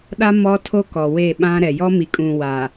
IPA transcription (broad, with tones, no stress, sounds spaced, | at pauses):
ɗ a˦ m ɔ˦ tʰ o˦ k ɔ˨ w e˦˨ ɓ ã˦ ɾ ɛ˨ j ɔ˦ m i˨ kʼ ũ˨ w a˨